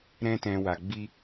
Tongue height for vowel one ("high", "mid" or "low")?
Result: mid